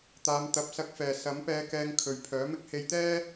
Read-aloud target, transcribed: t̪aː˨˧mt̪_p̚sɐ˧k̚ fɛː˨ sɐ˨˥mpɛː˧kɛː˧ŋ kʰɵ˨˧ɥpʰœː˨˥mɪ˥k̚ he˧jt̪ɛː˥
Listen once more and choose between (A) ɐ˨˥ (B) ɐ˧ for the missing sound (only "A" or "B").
A